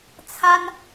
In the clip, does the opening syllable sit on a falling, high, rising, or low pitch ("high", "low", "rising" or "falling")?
high